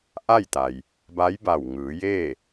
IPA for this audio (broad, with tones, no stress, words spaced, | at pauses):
ʔa˥˨jt̪a˩j | ba˧˥jba˧˩wŋɯː˩˧jeː˥˨